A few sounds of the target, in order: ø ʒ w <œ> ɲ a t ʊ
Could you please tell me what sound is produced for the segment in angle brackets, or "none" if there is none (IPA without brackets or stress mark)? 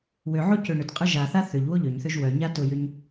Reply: œ